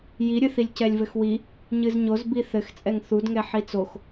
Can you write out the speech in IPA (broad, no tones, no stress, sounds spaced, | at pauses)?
j i ɾʲ ɨ θ i lʲ c ɛ lʲ v ɘ x w i | ɲ ɨ z ɲ o z b i θ ɘ x t͡sʼ ɛ ŋ θ u d ŋ ɛ ħ i t͡s o x